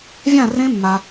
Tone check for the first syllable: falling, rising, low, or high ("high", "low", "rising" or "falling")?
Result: falling